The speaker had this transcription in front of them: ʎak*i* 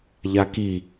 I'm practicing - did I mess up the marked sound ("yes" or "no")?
no